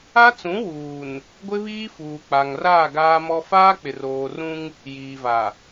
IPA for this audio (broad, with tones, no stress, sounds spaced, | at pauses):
a˦ t͡s ũ˨˦ w uː˨ n | ɡʷ ɪ˦ β iː˦ f uː˨ k͡p a˨ ŋ r aː˦˨ ɡ aː˦ m ɔ˦ f aː˦ k͡p ɪ˨ r oː˨ r ũ˦ ŋ | j iː˨ v a˨